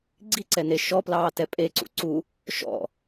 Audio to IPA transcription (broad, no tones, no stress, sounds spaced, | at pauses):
ɡ͡ǀ i ǀ ɛ n e ʃ ɔ p l ɑː t ɛ pʼ e ǀ ṵ ǀ u | ʃ ɔ̰